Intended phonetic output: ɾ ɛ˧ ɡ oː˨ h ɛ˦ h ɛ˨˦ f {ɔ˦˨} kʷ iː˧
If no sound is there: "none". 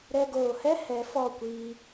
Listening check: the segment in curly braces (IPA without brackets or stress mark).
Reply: ɔ˦˨